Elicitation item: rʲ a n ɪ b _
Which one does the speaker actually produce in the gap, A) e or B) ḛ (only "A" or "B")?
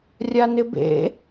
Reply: B